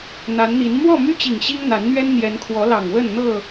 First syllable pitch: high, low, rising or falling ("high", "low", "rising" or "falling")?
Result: rising